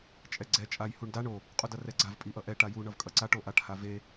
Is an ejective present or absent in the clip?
present